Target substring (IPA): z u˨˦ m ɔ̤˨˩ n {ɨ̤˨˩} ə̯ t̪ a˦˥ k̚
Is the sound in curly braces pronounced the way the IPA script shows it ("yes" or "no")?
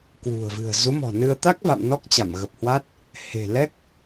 no